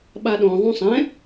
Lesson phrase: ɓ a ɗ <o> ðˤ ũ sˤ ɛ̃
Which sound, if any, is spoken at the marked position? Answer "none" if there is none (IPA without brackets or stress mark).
õ